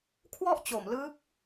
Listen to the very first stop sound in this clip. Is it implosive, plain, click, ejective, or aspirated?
aspirated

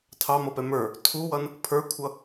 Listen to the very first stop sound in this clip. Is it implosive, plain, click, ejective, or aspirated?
aspirated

